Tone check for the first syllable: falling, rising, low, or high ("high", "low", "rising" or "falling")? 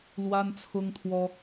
high